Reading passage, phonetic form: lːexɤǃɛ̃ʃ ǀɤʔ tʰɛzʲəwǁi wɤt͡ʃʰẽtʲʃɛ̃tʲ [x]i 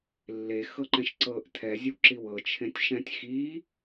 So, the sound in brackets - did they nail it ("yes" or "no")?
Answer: yes